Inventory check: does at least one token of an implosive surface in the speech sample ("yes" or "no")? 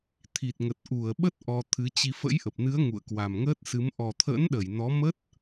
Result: yes